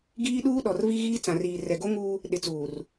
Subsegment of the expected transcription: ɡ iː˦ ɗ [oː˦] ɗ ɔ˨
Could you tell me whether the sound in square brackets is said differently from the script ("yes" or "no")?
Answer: yes